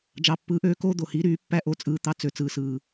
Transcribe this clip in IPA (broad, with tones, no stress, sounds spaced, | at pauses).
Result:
d͡ʒ ɑ˨ pː ɯː˨˦ ʔ øː˦ k oː˦ d̪ o˨ h i˨˦ ɾ yː˨˦ pː æ˦ ʔ o˧ t͡sʼ ɯː˦ t̪ ɑ˦ t͡s ø˧ t͡s ɯː˧ s ɯː˧